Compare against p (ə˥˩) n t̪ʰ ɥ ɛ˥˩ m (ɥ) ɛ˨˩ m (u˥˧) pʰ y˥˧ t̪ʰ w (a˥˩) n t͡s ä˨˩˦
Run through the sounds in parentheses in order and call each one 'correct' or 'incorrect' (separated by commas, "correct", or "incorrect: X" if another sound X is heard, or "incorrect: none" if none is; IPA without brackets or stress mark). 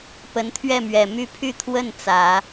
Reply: incorrect: ə˧˥, correct, incorrect: y˥˧, incorrect: ə˥˩